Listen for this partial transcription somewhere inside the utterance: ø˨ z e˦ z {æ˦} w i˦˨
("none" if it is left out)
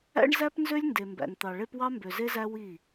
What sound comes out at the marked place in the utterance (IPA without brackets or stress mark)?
æ˦